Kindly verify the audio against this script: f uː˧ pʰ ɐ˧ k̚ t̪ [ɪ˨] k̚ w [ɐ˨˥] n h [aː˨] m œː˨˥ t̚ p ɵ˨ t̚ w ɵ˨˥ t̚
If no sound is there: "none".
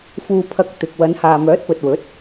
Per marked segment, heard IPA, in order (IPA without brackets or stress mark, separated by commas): ɪ˨, ɐ˨˧, aː˨